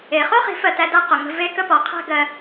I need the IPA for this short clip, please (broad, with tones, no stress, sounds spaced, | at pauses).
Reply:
e˨ χ o˦ χ i̤˨˦ f ɜ˨ t æ˨ d a˦ q ʊ˨ ŋ ə̤˧ v e˦ k ə˦ p ɔ˨ qʰ æ̤˦ ɡ ɜ˧